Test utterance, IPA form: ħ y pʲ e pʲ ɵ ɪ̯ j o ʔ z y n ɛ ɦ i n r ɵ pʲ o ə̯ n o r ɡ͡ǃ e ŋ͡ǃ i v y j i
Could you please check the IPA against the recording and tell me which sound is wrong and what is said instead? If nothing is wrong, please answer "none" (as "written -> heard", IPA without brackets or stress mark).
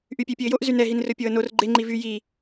ħ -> ʔ